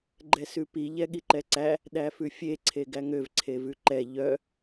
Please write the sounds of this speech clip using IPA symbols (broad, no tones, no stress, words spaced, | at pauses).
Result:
ɡ͡ǃɛsʉpi ʎɛɠiǃɛǀæ | ɗæfʉfʲe ǀʰeɡæŋøv ǀʰevʉǃɛ ʎœ